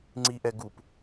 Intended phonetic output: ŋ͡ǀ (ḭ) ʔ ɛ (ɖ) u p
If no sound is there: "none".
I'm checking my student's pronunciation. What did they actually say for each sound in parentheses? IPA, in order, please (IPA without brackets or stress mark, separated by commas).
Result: i, ɡ